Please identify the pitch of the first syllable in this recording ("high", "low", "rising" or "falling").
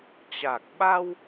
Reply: low